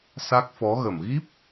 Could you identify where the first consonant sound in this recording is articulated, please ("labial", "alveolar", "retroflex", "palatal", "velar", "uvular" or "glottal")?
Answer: alveolar